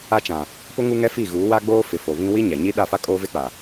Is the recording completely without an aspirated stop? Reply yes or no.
yes